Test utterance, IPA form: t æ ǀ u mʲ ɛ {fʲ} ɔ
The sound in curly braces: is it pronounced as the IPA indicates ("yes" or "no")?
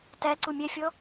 yes